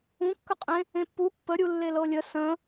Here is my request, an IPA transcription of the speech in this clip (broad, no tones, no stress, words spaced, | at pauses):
ũkːəqʼẽ | ẽpːu pːəɾʲu lːelɤlʲə sə̃